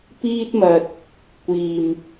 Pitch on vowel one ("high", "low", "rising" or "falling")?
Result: high